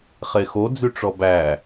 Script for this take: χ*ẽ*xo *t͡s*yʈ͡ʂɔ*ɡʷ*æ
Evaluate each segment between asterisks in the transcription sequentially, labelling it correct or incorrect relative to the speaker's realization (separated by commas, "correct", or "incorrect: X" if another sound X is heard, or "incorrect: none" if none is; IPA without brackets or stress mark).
incorrect: e, incorrect: d͡z, incorrect: b